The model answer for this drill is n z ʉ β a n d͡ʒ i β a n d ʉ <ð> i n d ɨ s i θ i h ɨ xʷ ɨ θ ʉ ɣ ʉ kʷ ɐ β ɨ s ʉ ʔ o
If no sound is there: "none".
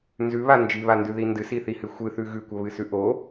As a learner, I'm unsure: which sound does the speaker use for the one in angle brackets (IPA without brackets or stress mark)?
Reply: ð